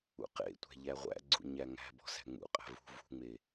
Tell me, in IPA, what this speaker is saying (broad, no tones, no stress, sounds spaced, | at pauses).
ṵ q ḛ tʷ æ̤ ʎ æ ʁʷ æ̰ ɡ͡ǀ ṵ ɲ æ ŋ æ̤ b ɔ̤ s æ̤ ŋ͡m ṵ qʼ æ̤ v ṳ v ṳ ŋ͡m e